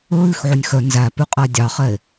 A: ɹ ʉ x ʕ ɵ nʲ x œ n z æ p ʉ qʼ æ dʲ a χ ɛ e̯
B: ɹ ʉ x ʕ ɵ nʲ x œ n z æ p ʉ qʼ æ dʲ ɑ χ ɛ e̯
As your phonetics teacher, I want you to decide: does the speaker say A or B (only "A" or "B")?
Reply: B